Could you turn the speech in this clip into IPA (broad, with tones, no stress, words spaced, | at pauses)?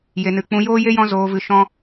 je˧nɨ˧ k͡pũ˧joː˦je˦ jɔ̃˦zoː˧vɨ˧ ʃɔ̃˦